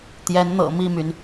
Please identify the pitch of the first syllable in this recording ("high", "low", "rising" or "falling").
rising